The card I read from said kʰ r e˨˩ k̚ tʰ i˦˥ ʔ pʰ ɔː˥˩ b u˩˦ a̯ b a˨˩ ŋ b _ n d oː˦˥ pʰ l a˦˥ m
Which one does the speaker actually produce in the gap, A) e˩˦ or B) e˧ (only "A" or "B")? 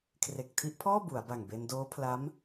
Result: B